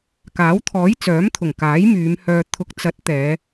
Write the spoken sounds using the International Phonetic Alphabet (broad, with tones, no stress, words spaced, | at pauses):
kaː˨˥wt̪ʰɔː˨˥jt͡sœː˨˥mt̪ʰʊ˨˩ŋ kaː˨˥jmyː˨˧mhœː˧ t̪ʰʊ˨k̚t͡sɐ˨˥t̚ t̪ɛː˨˧